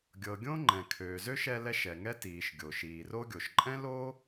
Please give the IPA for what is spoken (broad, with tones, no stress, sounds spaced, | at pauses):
ɡʲ ɤ˩ ɡʲ õ˥ ŋ͡ǃ ɛ̃˩ kʰ øː˩ z ø˥ ʃ ɛ˥ l ɛ˥ ʃ ɛ˩ ŋ ɛ˥ t iː˩ ʃ ɡʲ o˩ ʃ iː˩ r o˥ ɡʲ o˩ ʃ ǃʼ ɛ̃˥ l oː˥